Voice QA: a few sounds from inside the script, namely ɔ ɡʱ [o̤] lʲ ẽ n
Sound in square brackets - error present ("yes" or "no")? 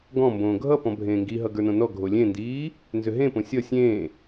yes